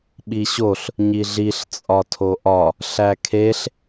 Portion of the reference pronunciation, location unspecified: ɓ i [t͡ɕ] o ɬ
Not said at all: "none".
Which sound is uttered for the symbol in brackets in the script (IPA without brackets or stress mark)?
ɕ